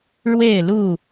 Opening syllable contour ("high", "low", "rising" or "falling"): falling